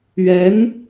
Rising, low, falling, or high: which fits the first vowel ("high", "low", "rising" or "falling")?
rising